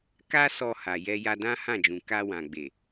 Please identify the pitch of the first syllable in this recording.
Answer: high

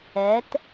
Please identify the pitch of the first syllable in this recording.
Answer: rising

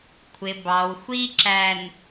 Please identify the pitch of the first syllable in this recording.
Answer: low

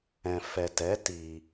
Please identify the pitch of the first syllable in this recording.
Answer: low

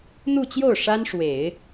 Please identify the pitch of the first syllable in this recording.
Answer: falling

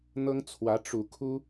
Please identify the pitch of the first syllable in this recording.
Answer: high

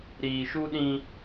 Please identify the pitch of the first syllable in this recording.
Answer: low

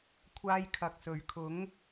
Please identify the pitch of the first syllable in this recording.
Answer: high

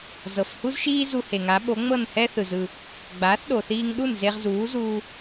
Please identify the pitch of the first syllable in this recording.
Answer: low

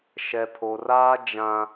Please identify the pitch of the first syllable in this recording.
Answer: low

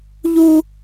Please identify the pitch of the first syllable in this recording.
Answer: high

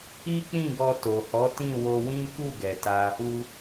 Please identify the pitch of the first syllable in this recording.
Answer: high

